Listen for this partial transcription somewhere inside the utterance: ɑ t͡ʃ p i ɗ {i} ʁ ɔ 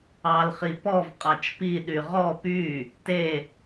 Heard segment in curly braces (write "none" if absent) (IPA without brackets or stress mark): y